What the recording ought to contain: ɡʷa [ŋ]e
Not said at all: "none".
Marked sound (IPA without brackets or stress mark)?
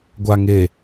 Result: ŋ